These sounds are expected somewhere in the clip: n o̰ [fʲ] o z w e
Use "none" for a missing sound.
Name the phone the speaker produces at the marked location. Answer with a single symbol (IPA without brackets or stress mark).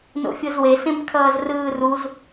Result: fʲ